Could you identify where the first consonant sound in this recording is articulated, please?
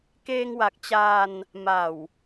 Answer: velar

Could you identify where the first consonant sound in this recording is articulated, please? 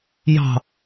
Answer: palatal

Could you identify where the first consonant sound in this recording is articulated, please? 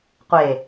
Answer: uvular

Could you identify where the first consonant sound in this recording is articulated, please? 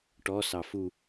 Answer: retroflex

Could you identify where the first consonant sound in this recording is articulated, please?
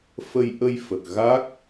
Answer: labial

